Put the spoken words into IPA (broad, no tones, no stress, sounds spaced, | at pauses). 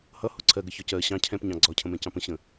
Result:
h ʌ h ʊ ǀʰ ɜ ɡ ə ç ɒ c ɜ ɕ ɑ̃ cʰ ɛ̃ p ɲ ɑ̃ ɡ͡ǀ ɒ cʰ ə̃ m ɛ̃ c ɑ̃ p ə̃ ɕ ə̃